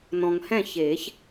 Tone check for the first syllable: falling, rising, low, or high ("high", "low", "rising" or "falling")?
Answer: low